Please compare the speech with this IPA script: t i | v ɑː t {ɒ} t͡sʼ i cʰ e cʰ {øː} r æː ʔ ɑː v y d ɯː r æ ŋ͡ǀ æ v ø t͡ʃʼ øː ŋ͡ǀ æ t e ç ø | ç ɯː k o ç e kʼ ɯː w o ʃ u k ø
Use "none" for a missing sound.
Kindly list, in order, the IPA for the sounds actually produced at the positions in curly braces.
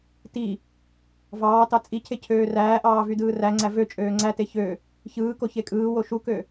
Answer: ɑ, øː

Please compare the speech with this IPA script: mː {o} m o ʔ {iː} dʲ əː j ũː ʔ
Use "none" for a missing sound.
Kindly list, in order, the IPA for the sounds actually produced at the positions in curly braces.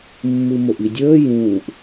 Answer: u, i

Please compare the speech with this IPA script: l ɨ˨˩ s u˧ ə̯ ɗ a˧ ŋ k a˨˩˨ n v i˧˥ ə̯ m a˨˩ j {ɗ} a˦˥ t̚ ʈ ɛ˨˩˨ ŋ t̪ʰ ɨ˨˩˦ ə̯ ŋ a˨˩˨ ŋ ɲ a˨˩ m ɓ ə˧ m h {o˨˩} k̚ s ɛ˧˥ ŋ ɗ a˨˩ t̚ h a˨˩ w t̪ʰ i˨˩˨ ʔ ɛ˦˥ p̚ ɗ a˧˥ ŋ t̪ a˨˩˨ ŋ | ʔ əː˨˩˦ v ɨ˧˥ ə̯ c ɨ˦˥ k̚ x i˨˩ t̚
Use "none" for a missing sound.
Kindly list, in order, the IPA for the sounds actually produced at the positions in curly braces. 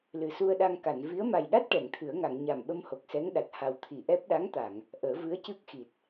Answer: ɗ, o˨˩

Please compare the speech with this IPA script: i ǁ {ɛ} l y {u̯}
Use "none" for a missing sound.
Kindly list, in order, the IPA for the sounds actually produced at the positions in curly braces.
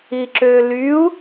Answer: ø, u̯

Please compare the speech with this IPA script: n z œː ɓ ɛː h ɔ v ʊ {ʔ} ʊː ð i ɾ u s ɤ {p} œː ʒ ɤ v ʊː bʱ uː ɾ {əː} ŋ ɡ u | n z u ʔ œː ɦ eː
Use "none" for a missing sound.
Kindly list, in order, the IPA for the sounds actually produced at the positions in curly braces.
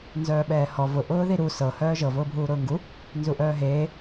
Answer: ʔ, h, ʊː

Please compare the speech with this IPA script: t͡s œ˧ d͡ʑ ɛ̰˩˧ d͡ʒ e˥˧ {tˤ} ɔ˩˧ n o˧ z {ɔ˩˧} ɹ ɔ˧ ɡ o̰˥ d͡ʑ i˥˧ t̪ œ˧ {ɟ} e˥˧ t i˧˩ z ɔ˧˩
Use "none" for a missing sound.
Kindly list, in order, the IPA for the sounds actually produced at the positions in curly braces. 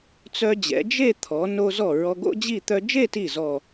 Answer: t̪ʰ, ɔ˧˩, d͡ʒ

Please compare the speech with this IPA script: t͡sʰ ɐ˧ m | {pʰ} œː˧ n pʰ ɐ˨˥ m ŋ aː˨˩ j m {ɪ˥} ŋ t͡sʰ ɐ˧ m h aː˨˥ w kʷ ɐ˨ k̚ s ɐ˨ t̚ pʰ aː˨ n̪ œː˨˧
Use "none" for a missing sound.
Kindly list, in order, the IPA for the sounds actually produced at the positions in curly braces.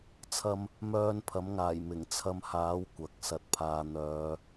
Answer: m, ɪ˨˩

